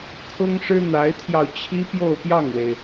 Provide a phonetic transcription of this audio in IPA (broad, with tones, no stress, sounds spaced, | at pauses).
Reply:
kʰ ʊ˥ ŋ ʂ ɻ̩˥ n̪ a˧˥ ɪ̯ t̪ʰ j ɑ˧ ʊ̯ t͡ɕʰ i˥ p j o˥˧ ʊ̯ p j ɑ˥˩ ŋ w e˩ ɪ̯